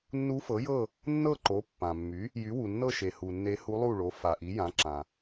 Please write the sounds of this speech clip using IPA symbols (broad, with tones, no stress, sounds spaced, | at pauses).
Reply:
nː u˧˥ f ɤ˩˥ j ɤ˥˨ | nː ɤ˥˨ ǃ o˩˥ pː ã˩ mː y˩˥ | j y˩˥ w u˩ nː ɤ˥˨ ʃ e˩ h u˩ nː e˧˥ h u˧˥ lˠ u˥˨ ɭ o˩˥ f a˩ ʔ i˩˥ j ã˩˥ ǁ ã˩